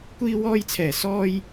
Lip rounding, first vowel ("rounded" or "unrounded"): unrounded